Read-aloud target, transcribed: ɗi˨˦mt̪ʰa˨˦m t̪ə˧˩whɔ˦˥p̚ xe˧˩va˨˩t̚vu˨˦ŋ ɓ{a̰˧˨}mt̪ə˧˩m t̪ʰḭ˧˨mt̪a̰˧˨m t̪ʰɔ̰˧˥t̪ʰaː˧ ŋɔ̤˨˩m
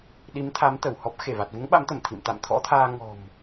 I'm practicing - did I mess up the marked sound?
yes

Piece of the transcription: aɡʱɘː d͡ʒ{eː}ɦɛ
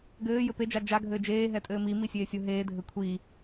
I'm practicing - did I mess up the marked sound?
no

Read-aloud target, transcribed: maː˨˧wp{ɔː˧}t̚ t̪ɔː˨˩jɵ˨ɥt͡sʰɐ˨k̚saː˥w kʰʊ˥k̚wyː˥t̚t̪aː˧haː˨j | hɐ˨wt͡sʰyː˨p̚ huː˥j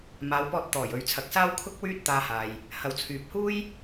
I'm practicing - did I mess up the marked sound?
no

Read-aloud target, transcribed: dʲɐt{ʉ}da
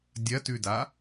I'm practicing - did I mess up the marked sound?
no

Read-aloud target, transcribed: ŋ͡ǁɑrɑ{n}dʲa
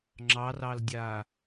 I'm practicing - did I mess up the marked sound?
yes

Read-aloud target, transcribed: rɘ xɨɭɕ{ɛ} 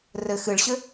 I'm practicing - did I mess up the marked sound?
yes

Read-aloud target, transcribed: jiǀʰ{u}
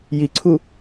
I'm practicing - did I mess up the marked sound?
no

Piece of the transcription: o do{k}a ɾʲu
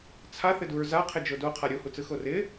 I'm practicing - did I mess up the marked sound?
yes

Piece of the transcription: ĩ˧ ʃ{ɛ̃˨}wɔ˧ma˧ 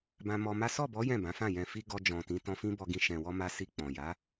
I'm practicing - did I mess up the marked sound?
no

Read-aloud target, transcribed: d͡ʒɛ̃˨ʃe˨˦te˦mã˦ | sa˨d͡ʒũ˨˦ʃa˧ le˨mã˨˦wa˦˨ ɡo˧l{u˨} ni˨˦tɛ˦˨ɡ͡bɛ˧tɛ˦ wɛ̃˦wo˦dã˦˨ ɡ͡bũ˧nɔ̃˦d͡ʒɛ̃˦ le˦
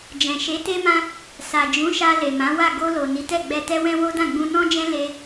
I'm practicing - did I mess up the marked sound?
yes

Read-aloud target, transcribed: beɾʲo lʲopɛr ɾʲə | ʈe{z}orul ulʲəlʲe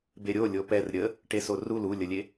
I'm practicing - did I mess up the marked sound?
yes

